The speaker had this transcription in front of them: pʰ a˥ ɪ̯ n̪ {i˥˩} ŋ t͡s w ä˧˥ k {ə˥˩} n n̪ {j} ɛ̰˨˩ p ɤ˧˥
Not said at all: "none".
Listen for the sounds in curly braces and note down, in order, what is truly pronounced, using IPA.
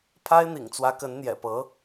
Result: ḭ˨˩, ə˧˥, j

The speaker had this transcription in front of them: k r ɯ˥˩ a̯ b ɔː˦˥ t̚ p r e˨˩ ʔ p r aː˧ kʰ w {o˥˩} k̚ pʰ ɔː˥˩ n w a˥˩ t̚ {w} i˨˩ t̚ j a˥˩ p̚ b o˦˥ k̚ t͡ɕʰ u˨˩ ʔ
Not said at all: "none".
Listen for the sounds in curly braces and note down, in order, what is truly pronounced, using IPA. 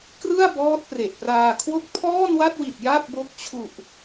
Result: o˥˩, w

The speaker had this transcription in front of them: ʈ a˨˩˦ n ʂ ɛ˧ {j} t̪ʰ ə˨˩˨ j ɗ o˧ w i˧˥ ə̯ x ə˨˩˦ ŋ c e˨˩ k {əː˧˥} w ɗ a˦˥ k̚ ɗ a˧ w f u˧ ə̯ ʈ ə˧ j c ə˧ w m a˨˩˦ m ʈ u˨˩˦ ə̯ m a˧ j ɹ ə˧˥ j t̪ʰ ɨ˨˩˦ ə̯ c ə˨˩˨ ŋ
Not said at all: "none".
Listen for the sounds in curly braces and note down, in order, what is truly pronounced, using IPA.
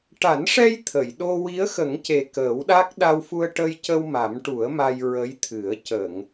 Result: j, əː˨˩˦

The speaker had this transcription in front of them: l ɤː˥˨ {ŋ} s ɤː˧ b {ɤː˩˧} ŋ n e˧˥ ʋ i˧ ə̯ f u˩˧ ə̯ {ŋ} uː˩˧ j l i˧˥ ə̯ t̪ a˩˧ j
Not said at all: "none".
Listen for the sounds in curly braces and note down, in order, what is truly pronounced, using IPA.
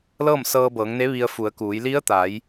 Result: m, ɤː˩˧, k

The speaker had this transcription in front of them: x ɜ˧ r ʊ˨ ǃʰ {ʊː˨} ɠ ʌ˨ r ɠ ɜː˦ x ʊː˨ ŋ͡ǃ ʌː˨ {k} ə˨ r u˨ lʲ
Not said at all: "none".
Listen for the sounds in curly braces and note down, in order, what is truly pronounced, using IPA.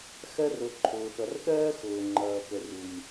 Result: ʊː˨, k

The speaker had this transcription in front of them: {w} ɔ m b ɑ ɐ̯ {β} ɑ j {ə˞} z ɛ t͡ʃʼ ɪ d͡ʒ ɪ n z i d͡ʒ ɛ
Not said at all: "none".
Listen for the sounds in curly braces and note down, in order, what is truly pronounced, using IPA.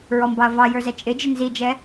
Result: ɹ, v, ə˞

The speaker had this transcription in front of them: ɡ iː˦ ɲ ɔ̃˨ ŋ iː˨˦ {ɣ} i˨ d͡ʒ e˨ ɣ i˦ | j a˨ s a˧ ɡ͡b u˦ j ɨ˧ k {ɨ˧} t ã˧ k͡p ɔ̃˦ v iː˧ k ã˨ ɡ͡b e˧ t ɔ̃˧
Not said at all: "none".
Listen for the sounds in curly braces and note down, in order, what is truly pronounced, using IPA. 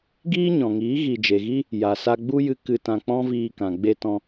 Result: ɣ, ɨ˧

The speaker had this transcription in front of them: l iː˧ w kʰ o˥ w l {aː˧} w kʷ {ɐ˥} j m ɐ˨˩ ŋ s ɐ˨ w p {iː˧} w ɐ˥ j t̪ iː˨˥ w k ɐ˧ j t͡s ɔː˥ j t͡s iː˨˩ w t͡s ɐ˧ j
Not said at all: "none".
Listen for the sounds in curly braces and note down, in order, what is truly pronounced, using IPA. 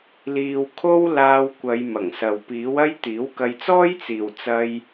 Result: aː˧, ɐ˨˧, iː˨˥

